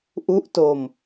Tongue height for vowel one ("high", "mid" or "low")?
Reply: high